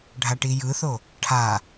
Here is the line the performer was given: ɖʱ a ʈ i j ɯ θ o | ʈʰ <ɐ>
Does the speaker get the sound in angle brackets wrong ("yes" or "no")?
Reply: yes